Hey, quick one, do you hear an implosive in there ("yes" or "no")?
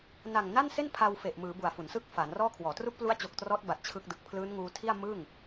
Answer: no